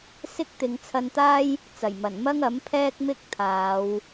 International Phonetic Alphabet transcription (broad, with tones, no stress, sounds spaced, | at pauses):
s ɪ˥ k̚ t̪ ɪ˨˧ ŋ t͡sʰ ɐ˧ n t̪ aː˥ j | t͡s ɐ˨˩ j m ɐ˨˩ n m ɐ˥ ŋ ɐ˨˥ m pʰ ɛː˥ k̚ m ɪ˥ k̚ t̪ʰ aː˨˧ w